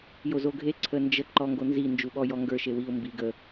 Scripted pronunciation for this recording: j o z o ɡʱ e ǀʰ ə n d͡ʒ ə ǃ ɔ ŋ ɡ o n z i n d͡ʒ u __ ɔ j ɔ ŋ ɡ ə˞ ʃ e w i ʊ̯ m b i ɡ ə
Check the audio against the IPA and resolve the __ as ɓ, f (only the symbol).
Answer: ɓ